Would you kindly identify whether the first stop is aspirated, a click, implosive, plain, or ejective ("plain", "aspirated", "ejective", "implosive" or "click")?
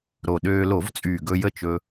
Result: implosive